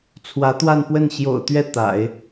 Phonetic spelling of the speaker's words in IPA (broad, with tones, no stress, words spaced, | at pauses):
t͡sʰwä˧˥t̪wa˥˧npwə˥˩n ɕjo̰˨˩ʊ̯t̪ɥɛ˥˩ t̪a̰˨˩˦ɪ̯